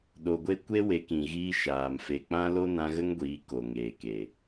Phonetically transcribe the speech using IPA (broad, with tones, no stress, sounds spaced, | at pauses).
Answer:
ɗ o˨ ɡʷ e˧ kʷ e˦ w e˨˦ k ĩ˨ ɣ iː˧ ʃ aː˨ m f e˨ k͡p ã˦ l o˦ n ã˧ ɣ ə˦ ŋ ɡʷ iː˨˦ k o˨ ŋ eː˨ k e˨